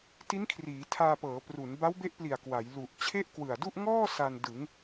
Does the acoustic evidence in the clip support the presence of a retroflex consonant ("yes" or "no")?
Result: no